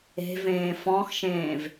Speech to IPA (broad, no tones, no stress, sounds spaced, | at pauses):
e̤ v ẽː f ɔ̃ x ʃ ẽː v